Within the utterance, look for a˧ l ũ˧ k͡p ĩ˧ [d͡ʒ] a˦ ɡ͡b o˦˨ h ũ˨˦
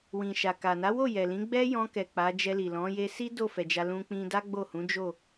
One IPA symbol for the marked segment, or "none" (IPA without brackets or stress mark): d